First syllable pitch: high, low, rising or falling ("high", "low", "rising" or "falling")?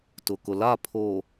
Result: low